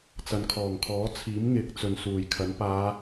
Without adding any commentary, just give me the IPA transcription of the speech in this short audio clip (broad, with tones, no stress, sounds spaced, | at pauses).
t͡s ɐ˨ n kʰ ɔː˨˩ ŋ kʰ ɔː˨˥ t͡sʰ iː˨˥ m ŋ ɪ˨˥ k̚ t͡s ɵ˨ n s uː˨˩ j kʰ ɐ˨˥ n p aː˨˧